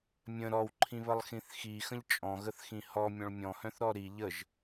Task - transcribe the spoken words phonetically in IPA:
mʲ ə̃ ɾ ɔ w ǃʰ ĩ β ə lˠ x ĩ θ x i x ə̃ ʎ t͡ʃʼ ɔ̃ ɣ ə θ x ĩ h ɔ mʲ ɔ̃ ɭ mʲ ɔ̃ h œ̃ θ ɾ ɔ ɾ i ʎ ə ʒ

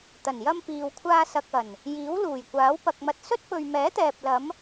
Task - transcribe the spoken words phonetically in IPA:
t̪ ɐ˨˩ n j ɐ˧ m p iː˨ w kʷʰ aː˧ s ɐ˨ k̚ ɐ˨˩ n | j iː˨˥ w l uː˨˩ j kʷ aː˨˥ w p ɐ˧ k̚ m ɐ˧ t̚ s ɵ˥ t̚ p ɵ˨ ɥ m ɛː˨˥ t̪ ɛː˨ p̚ l ɐ˨˧ m

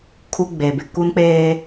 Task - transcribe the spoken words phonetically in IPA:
kʰ u˦ ɡ͡b e˨ b ɪ˨ k u˦ n k͡p eː˦

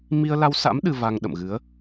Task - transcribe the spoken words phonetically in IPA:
m i˧ ə̯ l a˧ w s a̰˧˥ m ɗ ɨ˧ v a˧ ŋ ɗ ə̰˧˨ m ɣ ɨ˨˦ ə̯

